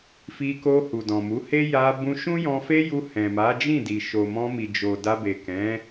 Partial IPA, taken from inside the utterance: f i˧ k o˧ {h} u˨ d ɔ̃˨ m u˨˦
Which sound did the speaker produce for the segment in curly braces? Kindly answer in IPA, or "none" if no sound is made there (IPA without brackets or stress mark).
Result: h